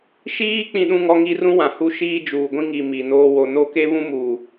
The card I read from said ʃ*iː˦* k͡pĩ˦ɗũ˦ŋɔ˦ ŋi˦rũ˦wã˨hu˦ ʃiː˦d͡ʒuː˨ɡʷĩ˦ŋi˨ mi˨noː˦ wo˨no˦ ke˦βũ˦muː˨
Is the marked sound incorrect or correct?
correct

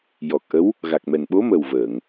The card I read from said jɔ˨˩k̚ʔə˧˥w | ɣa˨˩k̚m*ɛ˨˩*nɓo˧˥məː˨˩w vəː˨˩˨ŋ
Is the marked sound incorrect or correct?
correct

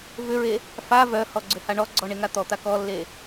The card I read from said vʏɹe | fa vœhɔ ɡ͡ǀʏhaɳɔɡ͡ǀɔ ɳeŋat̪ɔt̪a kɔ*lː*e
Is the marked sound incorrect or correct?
correct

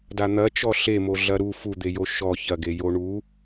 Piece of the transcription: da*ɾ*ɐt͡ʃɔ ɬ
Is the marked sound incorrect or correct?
incorrect: n̪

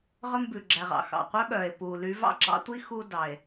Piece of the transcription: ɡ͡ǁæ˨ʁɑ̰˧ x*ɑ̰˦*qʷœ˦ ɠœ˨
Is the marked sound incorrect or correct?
incorrect: ɑ̰˨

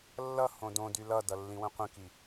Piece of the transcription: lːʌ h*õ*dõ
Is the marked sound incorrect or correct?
correct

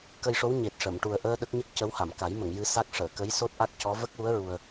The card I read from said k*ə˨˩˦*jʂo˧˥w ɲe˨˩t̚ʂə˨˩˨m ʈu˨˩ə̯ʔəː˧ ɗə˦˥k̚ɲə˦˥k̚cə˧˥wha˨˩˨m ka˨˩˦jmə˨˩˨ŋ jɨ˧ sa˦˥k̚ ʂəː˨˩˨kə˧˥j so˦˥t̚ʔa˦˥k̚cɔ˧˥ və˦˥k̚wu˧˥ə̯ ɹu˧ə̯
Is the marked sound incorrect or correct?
incorrect: ə˧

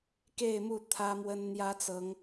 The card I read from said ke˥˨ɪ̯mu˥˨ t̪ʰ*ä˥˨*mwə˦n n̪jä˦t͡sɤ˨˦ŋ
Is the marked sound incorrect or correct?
incorrect: ä˦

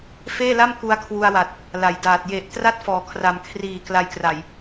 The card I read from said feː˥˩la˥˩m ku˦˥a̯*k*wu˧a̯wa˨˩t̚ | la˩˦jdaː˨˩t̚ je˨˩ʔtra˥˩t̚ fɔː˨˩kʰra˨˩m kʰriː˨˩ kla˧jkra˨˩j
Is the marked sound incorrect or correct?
incorrect: kʰ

